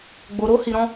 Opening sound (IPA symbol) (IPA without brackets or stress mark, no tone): ɡ͡b